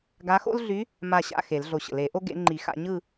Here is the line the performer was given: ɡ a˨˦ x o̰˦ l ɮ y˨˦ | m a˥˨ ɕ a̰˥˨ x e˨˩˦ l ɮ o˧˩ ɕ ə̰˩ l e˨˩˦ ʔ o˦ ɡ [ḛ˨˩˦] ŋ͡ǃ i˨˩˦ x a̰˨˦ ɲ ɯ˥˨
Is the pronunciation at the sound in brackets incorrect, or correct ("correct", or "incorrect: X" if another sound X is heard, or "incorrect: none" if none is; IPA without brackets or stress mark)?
correct